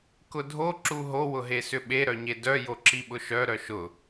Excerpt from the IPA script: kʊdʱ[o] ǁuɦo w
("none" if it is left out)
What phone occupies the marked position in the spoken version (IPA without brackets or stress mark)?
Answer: o